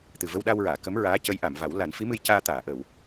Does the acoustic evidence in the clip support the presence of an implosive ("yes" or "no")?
yes